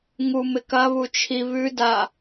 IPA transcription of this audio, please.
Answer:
ŋ u m ɪ k ɐ β u t͡ʃʰ i β ʉ d a

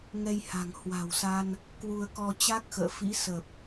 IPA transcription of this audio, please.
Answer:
ŋ ɛ˧ j h a̤˨˩ ŋ h w a̤˨˩ w s a˧ n | k w u˧ ə̯ k ɔ˧ t͡ɕ a˦˥ k̚ x ə̰ː˧˨ f ḭ˧˥ s ə˨˩ p̚

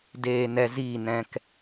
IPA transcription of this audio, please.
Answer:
d eː˧ n ɛ˧ z iː˦˨ n ɛ̃˧ k

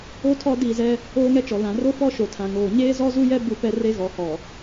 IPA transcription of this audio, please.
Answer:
o˦ tʰ ɔ˦ d i˦˨ z ɛ˦ | oː˦ ŋ ɛ˦ t͡ʃ ɔ˨ l ã˨ r o˦ f ɔ˦ ʃ o˨ tʰ ã˨ ŋ oː˨ ɲ eː˦ z ɔ˦ z u˦ j ɛ˦ b u˦˨ p ɛ˦ r e˦ ɣ ɔ˨ h ɔ˨

